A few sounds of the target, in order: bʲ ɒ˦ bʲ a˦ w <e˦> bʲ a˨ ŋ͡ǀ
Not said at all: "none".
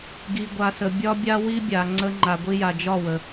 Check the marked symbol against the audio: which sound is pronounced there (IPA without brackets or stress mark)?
i˦